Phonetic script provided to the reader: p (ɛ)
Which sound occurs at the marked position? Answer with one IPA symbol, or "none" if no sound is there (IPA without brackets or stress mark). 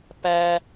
æ